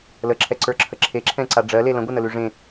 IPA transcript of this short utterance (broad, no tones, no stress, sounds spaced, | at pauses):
l ə ǁʰ ɛ ǀ ə˞ ǁʰ ə ǁʰ e ǁʰ ɛ̃ ǀ a ɖ͡ʐ ɜ l e l ə̃ ɡʷ ə n ə l ʉ ʐ ẽ